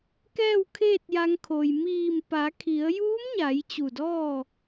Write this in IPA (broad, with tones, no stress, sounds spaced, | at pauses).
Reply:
k ɛː˥˨ w kʰ eː˥˨ t̚ j a˧ ŋ kʰ o˩ j m iː˧˩ m p a˩˧ kʰ i˩˧ ə̯ j uː˧˥ m ɲ a˩˧ j t͡ɕ u˧˩ d ɔː˥˨